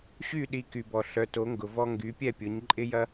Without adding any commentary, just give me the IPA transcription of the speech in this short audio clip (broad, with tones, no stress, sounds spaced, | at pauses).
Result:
ɕ y˥˨ ɗ i˨ k y˨ b ɔ˨ ɬ œ˨˦ t o˨˦ ŋ ɡ ʊ˨ v ɔ˦ ŋ ɡ y˨˦ pʲ ɛ˥˨ pʲ ʊ˨˦ ɲ ǃʼ ɪ˦ j ɐ˦